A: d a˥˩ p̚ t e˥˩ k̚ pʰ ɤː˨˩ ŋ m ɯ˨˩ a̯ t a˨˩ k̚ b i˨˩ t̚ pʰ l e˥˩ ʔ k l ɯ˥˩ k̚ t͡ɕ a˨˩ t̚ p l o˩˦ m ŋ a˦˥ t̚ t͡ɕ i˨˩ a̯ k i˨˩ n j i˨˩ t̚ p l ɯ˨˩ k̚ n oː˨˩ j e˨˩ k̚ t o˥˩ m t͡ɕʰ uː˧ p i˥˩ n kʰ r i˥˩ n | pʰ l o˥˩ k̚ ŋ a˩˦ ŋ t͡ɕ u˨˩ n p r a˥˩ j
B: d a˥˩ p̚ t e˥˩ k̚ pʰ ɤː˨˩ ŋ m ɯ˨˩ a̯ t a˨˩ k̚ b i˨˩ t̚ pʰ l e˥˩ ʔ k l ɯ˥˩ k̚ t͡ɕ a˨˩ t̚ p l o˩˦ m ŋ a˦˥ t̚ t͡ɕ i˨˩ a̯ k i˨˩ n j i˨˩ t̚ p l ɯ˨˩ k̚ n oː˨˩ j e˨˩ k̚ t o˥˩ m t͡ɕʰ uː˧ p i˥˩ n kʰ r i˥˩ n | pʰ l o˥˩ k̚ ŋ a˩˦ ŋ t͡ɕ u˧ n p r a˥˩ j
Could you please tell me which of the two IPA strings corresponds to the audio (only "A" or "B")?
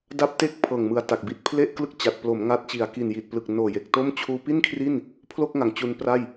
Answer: B